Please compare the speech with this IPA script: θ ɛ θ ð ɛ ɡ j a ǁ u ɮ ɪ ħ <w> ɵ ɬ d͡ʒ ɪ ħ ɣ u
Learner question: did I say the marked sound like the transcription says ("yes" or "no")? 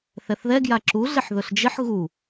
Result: no